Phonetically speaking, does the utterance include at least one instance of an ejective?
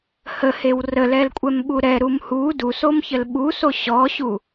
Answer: yes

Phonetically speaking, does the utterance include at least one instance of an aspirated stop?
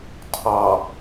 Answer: yes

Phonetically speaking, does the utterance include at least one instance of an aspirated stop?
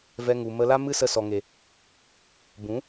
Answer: no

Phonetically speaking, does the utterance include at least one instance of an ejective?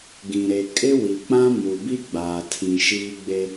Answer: yes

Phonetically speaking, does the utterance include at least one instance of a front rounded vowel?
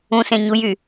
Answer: yes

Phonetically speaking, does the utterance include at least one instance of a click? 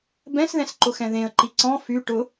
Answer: yes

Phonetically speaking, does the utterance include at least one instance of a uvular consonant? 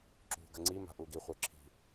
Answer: yes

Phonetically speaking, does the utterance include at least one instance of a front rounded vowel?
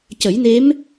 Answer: no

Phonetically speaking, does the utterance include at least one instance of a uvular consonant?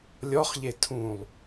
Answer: yes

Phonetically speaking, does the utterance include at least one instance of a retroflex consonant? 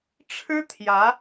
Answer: yes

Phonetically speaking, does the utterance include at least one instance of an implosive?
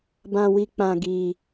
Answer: no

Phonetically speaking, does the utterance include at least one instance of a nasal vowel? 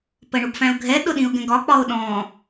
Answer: yes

